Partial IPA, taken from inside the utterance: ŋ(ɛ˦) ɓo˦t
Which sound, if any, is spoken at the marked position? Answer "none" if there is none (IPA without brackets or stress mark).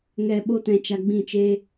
ɛ˦